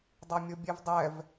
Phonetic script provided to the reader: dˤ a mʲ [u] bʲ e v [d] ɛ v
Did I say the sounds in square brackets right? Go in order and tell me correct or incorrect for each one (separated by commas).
incorrect, incorrect